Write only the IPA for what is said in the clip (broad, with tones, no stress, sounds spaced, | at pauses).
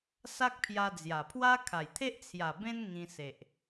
s a˦ k̚ pʰ j a˧ d͡z j a˨˩ pʰ w a˦ kʰ a˨˩ j t̪ʰ e˦ ʔ t͡sʰ j a˨˩ b ẽ˧ n ŋ ĩ˧ s e˨ ʔ